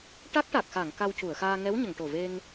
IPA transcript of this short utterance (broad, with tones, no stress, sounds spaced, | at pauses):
ʈ a˦˥ k̚ ʈ a˨˩ k̚ x a˨˩˨ ŋ k a˧ w c u˨˩˨ ə̯ x aː˧ ŋ ɛ˧˥ w ɲ ə˨˩˨ ŋ ʈ o˨˩ v e˧ ŋ